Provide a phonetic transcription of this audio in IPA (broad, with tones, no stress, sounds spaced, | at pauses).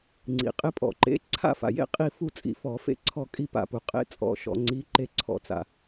ŋ͡ǀ ḭ˩ qʼ ɪ˨˥ pʼ ɔ̰˩ ǃ ḛ˨˥ ǀʰ a̰˥˨ f a̰˩ j ḛ˥˨ qʼ i˥˨ f u˥˨ t͡sʼ ḭ˧˩˧ f ɔ˧˩˧ f ḛ˥˨ ǀʰ ɔ˥˨ kʼ i˥˨ p a̰˧˩˧ p u˩ qʼ ḛ˨˥ t͡sʼ ɔ̰˨˥ ʃ ɔ̰˧˩˧ ŋ͡ǀ i˨˥ ǃ e˥˨ ǀʰ ɔ̰˧˩˧ t͡s a̰˩